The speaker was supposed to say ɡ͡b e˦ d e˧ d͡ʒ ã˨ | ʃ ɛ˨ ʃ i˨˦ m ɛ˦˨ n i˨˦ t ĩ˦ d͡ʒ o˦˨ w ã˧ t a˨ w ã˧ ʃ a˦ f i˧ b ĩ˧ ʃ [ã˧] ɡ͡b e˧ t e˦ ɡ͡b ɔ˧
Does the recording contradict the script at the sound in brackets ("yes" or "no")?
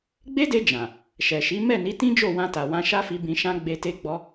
yes